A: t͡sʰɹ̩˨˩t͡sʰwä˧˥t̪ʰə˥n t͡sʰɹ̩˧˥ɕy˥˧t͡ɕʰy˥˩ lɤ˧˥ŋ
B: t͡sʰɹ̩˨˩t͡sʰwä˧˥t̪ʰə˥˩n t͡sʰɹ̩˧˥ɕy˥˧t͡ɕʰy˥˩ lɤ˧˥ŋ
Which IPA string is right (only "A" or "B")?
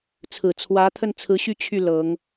B